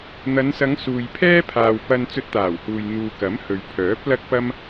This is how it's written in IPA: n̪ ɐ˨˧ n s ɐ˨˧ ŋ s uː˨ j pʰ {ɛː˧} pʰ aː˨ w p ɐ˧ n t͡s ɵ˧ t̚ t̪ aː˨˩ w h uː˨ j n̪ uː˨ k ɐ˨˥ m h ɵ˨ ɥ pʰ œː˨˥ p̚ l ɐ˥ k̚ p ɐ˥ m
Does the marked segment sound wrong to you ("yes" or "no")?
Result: yes